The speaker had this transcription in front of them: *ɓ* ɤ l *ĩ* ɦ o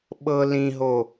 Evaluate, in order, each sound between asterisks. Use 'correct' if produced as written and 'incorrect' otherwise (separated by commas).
correct, correct